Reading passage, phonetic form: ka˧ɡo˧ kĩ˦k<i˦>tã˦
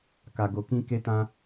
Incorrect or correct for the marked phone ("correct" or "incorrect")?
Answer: incorrect